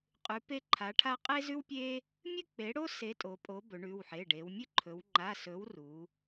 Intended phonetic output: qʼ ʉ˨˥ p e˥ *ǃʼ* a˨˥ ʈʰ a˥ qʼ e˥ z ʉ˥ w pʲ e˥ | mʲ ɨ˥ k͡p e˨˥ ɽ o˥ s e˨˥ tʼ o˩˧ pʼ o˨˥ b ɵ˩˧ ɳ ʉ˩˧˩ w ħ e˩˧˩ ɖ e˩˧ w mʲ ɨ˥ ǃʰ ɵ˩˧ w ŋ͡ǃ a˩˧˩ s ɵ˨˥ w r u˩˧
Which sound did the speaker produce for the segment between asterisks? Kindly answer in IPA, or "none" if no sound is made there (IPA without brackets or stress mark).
ǃʰ